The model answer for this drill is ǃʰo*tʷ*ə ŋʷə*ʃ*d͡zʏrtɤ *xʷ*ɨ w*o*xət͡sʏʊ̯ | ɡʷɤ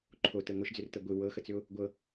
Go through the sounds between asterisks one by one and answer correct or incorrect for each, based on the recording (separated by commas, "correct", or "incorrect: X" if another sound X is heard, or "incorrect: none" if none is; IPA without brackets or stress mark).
incorrect: t, correct, incorrect: ɡʷ, incorrect: ɤ